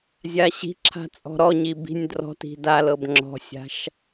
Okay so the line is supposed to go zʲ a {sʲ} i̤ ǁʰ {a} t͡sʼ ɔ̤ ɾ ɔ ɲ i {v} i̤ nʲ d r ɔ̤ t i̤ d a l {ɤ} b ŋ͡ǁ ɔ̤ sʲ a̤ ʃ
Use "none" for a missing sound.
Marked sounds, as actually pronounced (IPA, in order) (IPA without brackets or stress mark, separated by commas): ɕ, a̤, b, ɤ